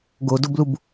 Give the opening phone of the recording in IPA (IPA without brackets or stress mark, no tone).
ɡ